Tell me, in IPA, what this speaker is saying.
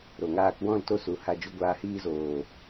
ɾ o˨ ŋ aː˧ k w ɔ̃˦˨ l t o˧ s u˨ h a˨ d͡ʒ u˨ ɡʷ aː˨ h iː˧ z oː˨

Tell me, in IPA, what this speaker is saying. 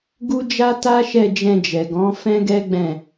ɡ u˦ d͡ʒ a˦ t a˦ ʃ ɛ˦˨ d͡ʒ ɛ̃˧ d͡ʒ ɛ˨ ɡ ɔ̃˨˦ f ɛ̃˦ ɡ ɛ˦ ɡ͡b ɛ̃˦˨

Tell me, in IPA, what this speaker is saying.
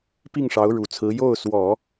p i˥˩ ŋ ʂ ɑ˧˥ ʊ̯ ɻ u˨˩ t͡sʰ ɹ̩˧˥ j o˥˩ ʊ̯ s w ɔ˨˩˦

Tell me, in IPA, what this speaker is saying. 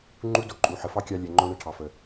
ŋ͡ǃ u˦ d o˧ ǃʼ u˨ ħ ə˨ f ɑ˦ kʲ ɑ˧ lʲ ɛ˨ ŋ͡ǃ o˧ ɳ ɛ˧ ʈʰ ɑ˨ f ə˨

